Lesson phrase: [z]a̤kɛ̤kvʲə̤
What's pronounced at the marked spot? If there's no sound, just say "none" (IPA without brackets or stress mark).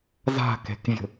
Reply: z